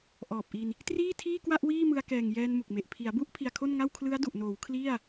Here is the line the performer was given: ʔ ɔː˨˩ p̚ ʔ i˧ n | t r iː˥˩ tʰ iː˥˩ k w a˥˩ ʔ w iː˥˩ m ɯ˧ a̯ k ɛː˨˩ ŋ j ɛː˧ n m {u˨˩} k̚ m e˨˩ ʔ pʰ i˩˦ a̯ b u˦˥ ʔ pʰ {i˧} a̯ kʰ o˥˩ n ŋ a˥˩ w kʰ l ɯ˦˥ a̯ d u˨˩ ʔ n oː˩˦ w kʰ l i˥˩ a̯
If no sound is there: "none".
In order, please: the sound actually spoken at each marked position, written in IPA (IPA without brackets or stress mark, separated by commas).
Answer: u˨˩, i˧